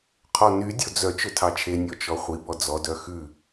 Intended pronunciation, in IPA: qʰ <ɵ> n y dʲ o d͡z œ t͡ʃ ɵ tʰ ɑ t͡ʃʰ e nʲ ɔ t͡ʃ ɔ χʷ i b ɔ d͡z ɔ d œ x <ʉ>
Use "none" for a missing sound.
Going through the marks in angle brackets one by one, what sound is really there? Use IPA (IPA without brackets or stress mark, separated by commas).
ɔ, ʉ